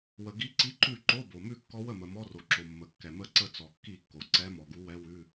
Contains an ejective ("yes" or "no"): no